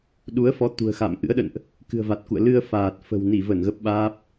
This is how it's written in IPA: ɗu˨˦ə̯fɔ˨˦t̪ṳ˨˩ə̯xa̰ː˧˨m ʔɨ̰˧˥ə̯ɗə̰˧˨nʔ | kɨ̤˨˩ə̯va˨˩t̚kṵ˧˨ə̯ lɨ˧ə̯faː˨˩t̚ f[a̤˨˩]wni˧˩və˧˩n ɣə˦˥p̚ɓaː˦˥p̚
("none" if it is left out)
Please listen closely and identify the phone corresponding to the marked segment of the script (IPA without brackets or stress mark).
ə̤˨˩